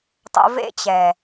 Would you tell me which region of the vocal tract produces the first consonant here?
tongue tip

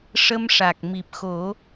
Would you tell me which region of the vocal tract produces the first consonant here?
retroflex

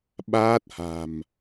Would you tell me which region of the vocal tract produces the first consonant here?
lips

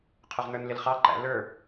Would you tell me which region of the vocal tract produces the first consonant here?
uvula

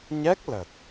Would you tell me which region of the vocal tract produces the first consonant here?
palate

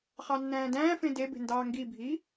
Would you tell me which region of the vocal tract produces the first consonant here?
uvula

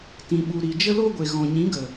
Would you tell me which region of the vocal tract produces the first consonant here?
tongue tip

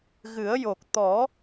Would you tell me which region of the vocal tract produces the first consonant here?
velum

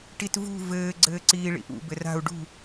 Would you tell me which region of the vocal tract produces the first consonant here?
retroflex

